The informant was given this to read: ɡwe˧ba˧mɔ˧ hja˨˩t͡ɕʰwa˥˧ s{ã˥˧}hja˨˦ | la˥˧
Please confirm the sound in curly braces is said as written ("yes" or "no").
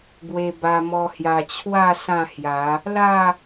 yes